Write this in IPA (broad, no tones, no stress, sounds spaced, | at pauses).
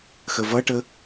x ə v ʌ ʈ ə